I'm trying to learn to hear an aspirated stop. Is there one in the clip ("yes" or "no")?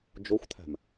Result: yes